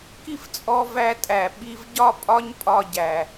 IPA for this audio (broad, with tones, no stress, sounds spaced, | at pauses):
k i˦ f t͡sʼ ɔ˧ v æ˧ tʼ æ˨ ɓ i˧ v ɟ ɒ˦ pʼ ɒ˦ ɲ pʼ ɒ˧ ɟ æ˨